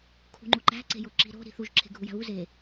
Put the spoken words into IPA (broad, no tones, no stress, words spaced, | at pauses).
kʰṳŋ͡ǃuǃæ̤ ǀe̤joǁi̤ ɾo̤ ɾi̤θuʒ ǁʰe̤ɡʱujæ̤βu ze